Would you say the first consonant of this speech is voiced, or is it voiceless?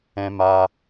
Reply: voiced